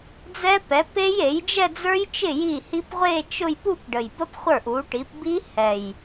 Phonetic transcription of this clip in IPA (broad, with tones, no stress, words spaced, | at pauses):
d͡zɛ˦˥pɛ˩˥pe˦˥j e˩˥jd͡ʒɛ˥˧d͡zə˞˦˥jt͡ʃɪ˥˩ ji˥˩hi˦˥p ʁʷe˥˧t͡ʃʊ˥˧j pu˥˧pɖə˨˩jbə˦˥p χʷə˞˥˩ʔu˩˥ʈi˩˥p bi˦˥ hɛ˨˩j